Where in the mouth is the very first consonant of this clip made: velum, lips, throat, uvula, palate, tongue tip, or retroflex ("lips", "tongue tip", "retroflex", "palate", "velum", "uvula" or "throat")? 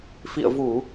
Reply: lips